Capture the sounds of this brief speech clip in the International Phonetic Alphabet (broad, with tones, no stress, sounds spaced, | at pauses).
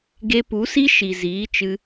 ɡ e˧ p u˨˦ s i˦ ʃ i˨ z iː˨˦ t͡ʃ ɨ˧